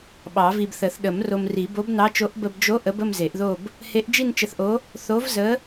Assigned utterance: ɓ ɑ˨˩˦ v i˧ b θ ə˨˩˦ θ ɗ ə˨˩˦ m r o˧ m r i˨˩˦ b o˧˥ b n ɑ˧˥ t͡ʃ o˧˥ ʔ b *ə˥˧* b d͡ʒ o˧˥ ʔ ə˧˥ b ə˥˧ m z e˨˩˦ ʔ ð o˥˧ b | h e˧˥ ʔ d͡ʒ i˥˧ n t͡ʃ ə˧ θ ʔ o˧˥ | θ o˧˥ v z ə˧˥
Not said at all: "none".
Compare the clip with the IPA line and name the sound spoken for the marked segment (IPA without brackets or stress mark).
ə˧